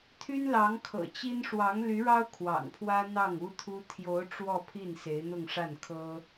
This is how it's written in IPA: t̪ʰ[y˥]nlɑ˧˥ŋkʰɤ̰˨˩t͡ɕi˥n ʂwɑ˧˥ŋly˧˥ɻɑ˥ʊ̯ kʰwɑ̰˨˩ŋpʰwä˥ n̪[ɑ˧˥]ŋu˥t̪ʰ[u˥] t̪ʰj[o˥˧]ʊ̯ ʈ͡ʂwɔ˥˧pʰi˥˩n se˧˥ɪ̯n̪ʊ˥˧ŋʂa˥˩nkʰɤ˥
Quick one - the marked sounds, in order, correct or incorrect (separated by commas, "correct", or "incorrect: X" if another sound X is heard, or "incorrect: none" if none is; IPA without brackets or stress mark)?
correct, incorrect: ɑ˥˩, correct, incorrect: o˧˥